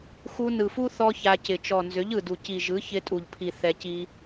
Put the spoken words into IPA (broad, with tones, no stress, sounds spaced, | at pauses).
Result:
x u˧ n ɯ˨ f u˦ θ ɔ˦ ç a˧ c ɪ˨ t͡ʃ ɔ˨ n z ʏ˨˦ ʎ ɯ˨ d u˨ c i˨ ʒ ɯ˨˦ ç ɪ˧ tʼ u˨ ʎ pʰ i˨ θ ɛ˧ c i˦